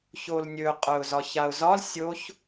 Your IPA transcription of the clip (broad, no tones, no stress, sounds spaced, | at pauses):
ç o l nʲ ɵ qʼ œ ʊ̯ z ɒ ç a ʊ̯ z ɒ l sʲ o ç